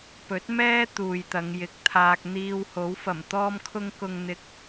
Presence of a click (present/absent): absent